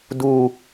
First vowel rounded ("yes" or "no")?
yes